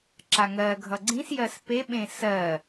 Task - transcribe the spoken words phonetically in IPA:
ǁ a ŋ ɜ ɡʱ ʌ ɡ͡ǀ ĩ s j ɜ s p e ɓ ẽ s ɜ

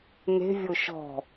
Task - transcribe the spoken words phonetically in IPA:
n e̤ vʲ o ʃ ɔ̤

